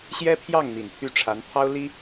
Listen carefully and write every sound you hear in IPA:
ɕ j ɛ˥ pʰ j ɑ˥˩ ŋ n̪ i˨˩ n pʰ y˥˩ ʈ͡ʂʰ a˧˥ n t̪ʰ ɑ˥ ʊ̯ l i˥

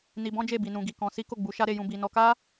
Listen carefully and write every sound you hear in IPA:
n i˧ b ɔ̃˦ d͡ʒ e˦˨ b i˧ n ũ˧ ɡ i˧ k ɔ̃˧ s i˦ k o˦˨ ɡ͡b u˨˦ ʃ a˦ ɾ e˧ j ũ˧ b i˨ n ɔ˧ k a˦

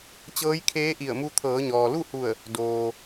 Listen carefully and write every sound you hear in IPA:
t͡ɕ ɤː˧˥ j kʰ eː˧˥ ʔ i˧˩ ə̯ m u˧ t̪ʰ ɤː˩˧ ɲ ɔː˩ l u˥˨ h u˧˩ ə̯ | d oː˩

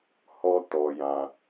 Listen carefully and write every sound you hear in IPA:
h ɔ˦ t ɔ˧ j ã˧

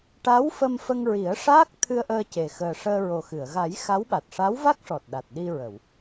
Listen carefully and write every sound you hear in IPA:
ʈ a˧˥ w f ə˧ m f ə˧ ŋ ɹ i˨˩˦ ə̯ ʂ aː˦˥ k̚ t̪ʰ ɨ˧ ə̯ ʔ əː˧ c e˨˩ x əː˨˩ ʂ əː˧ ɹ o˨˩ x ɨ˨˩˨ ə̯ ɣ a˨˩˦ j x a˧˥ w ɓ a˨˩ t̚ ʂ a˧˥ w v a˦˥ k̚ ʂ ɔ˨˩ t̚ ɗ a˨˩ t̚ ɗ i˧ ɹ ə˨˩˨ w

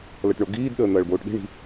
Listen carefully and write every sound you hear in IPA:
l ɐ ʈ ɳ o ɡ iː d ɗ əː n̪ ɐː ɭ b oː ʈ ɗ i̤ ɳ i̤

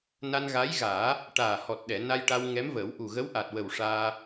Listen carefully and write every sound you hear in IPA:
n a˧ n ɣ a˧˥ j ɣ aː˨˩˦ | ʈ aː˨˩ h ɔ˨˩ t̚ ɗ ɛ˨˩˨ n a˧ j ʈ a˧ w ŋ ɛ˧˥ m v əː˨˩˦ w ʔ u˨˩ ɣ ə˧˥ w ʔ a˨˩ t̚ w ə˨˩ w ʂ aː˧

